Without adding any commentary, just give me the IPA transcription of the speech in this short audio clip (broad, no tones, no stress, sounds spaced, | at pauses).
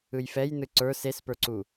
ɯ j f ɛ j n ɯ ǀ ə˞ s e s p ə˞ ǀ u